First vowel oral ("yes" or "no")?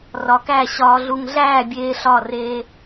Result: yes